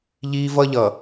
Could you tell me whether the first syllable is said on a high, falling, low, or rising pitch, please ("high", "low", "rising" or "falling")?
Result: high